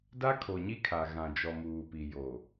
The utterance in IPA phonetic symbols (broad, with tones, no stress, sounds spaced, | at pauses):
d a˦ kʰ o˨ ɲ i˦ kʰ a˨ ɣ ã˨ d͡ʒ ɔ˨ m uː˨ p i˨ j o˨